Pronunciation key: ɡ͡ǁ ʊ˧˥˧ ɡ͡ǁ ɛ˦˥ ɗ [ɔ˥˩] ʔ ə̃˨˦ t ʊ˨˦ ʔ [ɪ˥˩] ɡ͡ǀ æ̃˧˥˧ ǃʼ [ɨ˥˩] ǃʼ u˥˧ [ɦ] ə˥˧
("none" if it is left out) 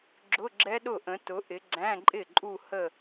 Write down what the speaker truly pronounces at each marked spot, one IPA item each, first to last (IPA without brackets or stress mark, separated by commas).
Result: ʊ˥˩, ɪ˨˦, ɪ˥˩, h